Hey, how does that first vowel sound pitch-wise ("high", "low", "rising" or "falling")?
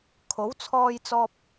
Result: rising